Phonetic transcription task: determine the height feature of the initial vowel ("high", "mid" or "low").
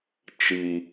high